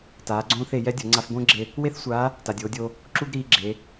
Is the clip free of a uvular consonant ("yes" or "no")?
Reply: yes